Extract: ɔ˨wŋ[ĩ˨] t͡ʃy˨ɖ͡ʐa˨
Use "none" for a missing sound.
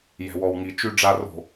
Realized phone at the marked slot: i˨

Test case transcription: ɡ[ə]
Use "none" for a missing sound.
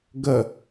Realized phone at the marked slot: ə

